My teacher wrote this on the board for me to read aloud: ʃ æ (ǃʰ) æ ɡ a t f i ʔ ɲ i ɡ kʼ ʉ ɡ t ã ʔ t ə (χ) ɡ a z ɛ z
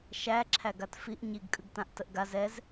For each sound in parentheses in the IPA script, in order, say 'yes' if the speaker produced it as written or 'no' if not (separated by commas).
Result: no, no